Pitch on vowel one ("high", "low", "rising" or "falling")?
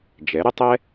rising